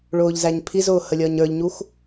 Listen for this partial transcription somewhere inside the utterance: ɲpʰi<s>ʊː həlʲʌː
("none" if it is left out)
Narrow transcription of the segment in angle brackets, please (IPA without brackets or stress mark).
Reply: z